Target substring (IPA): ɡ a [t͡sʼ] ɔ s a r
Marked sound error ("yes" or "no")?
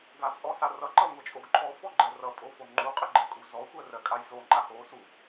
no